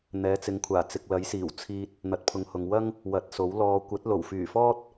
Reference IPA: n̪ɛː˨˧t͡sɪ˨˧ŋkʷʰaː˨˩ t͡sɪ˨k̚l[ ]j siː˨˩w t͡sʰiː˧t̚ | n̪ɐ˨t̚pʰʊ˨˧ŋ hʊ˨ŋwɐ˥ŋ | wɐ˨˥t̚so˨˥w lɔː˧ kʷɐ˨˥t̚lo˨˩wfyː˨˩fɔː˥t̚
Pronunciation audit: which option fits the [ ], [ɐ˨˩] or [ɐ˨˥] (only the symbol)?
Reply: ɐ˨˥